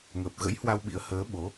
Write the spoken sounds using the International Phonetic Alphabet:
ŋ əː˨˩ p̚ ɣ ə̰˧˥ j h w a˧ w ɓ ḭ˧˥ ə̯ h əː˨˦ ɓ o˨˦

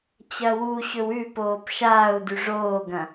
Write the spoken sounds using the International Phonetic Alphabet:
t͡ɕ ɐ w u ɕ ɵ w ʉ p oː p ʃ aː u̯ d ʉ ʐ oː ɡ ɐ̃

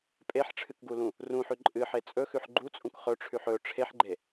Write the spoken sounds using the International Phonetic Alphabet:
pʼ e ħ ʈ͡ʂʰ ɨ k ɡ u l ũ | r ũ ħ ʉ ǃʼ ɨ ħ e t͡sʼ ɵ x ʉ ħ ɡ͡ǃ u t͡sʼ ũ k χ ɵ ʈ͡ʂʰ ʉ ħ ɵ ʈ͡ʂʰ e ħ ɡ͡ǃ e

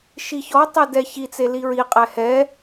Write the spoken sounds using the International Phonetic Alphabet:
ʃ i ç ɔ tˤ e d ɛ ç i t͡s e l i ɹ i qʼ ɛ h ɛ

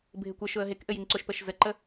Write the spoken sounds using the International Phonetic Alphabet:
bʱ ɪ kʷ ɘ ʃ ʊ ə̯ ɦ e k ʔ ɘ j i ŋ ǀ ʊ ʃ p ə ʃ z ə ǃ ə

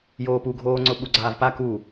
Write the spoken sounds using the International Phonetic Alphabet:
j oː p u ɡʱ oː ŋ͡ǀ ʊ ɓ u ɡ͡ǀ aː v p a k u

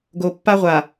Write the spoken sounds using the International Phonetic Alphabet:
ɡ o˨ pː a˦ ʁʷ a˨

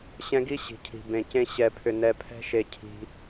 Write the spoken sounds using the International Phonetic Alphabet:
ɕ ɛ̃˦ ɡ i˦ ɕ i̤˨ cʰ i̤˨ b ẽ˨ c ẽ˦ ɕ ɛ˧ pʰ ʏ˧ n ɛ˧ pʰ ɛ̤˦ ʃ e˧ cʰ i̤˧

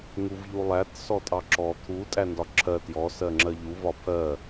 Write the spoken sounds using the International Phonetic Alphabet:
ŋ u v ʎ u lˠ æ t s ɔ tʼ ɑ ǁ ɔ t̪ʰ u tʼ æ n d ɒ ǁʰ ɜ t j ɔ s ɜ ŋ͡ǁ ɜ ʎ u v ɒ pʰ ɜ

